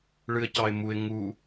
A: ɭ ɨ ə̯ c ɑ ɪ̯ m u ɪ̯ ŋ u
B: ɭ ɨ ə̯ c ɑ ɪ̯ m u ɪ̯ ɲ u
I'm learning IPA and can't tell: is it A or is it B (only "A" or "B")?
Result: A